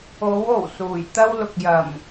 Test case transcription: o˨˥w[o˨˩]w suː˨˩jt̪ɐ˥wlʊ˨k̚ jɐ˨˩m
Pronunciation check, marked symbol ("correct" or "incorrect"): correct